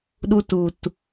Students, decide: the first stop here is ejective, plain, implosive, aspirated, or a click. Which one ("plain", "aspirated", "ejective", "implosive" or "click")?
implosive